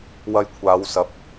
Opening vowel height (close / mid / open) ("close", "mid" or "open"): open